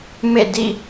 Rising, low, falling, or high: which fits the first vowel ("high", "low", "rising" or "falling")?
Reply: falling